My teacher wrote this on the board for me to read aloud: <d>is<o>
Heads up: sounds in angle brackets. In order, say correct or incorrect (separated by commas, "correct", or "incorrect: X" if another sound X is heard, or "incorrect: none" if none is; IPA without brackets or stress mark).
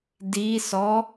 correct, incorrect: ɔ